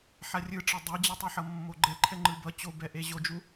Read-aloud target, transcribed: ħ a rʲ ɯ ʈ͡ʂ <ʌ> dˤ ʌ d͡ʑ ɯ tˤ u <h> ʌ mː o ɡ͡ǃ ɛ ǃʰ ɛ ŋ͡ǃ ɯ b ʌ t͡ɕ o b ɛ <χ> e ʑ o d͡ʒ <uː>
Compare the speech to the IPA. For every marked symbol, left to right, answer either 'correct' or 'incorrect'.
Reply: correct, incorrect: ħ, incorrect: ʔ, incorrect: u

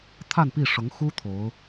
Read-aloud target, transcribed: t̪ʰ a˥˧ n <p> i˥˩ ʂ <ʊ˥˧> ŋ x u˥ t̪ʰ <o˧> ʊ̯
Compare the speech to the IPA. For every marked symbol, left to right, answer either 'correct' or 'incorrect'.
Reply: correct, incorrect: ʊ˧˥, incorrect: o˧˥

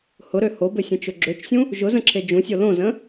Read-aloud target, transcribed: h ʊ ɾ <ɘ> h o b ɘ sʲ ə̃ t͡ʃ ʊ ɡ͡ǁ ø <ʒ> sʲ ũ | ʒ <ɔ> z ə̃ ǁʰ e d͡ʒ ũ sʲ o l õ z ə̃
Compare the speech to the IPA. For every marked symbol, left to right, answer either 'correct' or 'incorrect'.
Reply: incorrect: ø, incorrect: t͡ʃ, incorrect: ʊ

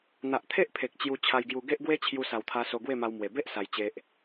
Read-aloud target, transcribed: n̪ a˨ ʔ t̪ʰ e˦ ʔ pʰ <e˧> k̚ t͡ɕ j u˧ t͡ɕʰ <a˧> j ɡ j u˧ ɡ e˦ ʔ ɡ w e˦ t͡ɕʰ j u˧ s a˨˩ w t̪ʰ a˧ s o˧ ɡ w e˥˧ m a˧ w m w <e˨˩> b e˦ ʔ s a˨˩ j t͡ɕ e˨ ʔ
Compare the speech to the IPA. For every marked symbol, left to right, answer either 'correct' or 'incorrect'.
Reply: incorrect: e˨, correct, correct

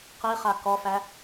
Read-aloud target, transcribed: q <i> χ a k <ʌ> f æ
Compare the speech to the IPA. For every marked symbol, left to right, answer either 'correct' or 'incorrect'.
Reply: correct, incorrect: ɔ

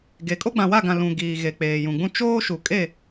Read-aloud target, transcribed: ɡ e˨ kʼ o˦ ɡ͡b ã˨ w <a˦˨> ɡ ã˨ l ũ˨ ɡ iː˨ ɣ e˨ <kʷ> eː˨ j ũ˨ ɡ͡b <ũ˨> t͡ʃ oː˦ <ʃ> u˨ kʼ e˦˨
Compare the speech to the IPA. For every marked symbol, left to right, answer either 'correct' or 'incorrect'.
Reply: correct, incorrect: k͡p, incorrect: ũ˦, correct

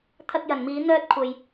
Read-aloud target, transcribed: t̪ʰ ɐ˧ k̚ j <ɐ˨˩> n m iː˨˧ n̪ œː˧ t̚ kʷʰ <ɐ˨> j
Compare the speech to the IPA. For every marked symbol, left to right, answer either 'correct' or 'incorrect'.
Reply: incorrect: ɐ˨, correct

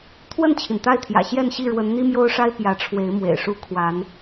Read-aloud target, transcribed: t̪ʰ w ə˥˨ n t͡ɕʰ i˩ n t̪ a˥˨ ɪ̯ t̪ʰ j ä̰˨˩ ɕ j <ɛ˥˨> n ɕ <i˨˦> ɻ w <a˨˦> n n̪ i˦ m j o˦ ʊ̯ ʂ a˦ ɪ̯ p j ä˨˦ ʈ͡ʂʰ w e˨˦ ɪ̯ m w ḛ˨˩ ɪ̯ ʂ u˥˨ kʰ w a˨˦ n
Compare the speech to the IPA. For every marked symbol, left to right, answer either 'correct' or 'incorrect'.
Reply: correct, incorrect: i˥˨, incorrect: ə˨˦

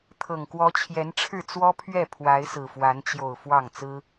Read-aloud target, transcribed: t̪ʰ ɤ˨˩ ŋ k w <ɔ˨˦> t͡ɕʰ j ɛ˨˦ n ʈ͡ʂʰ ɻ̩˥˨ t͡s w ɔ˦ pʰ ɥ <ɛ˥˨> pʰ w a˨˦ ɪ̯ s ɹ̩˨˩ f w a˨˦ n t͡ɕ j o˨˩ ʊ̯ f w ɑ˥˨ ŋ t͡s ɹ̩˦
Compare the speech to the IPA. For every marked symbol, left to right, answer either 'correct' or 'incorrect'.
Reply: correct, correct

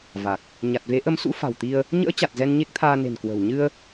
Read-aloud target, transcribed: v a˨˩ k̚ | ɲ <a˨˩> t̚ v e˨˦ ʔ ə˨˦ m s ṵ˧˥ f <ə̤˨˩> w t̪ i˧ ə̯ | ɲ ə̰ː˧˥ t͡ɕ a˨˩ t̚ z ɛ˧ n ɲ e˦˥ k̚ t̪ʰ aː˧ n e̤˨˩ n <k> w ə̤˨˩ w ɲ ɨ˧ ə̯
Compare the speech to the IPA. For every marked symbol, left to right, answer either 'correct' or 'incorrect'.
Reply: correct, incorrect: a̤˨˩, correct

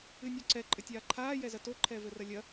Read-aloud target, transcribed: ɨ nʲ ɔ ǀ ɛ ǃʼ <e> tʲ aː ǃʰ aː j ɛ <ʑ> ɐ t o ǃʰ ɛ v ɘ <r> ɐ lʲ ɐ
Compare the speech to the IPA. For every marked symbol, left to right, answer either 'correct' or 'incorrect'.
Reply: incorrect: ɘ, incorrect: z, correct

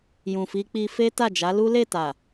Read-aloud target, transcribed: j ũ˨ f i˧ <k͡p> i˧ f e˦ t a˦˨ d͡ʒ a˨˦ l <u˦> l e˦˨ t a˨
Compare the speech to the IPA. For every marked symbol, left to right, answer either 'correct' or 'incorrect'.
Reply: correct, correct

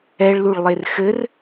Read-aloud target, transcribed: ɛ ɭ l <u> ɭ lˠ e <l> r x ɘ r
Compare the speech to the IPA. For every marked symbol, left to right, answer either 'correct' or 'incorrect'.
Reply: correct, incorrect: none

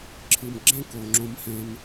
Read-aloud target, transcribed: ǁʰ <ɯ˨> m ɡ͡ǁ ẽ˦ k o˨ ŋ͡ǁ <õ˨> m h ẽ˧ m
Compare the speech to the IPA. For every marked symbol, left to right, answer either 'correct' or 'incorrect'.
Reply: correct, incorrect: õ˧

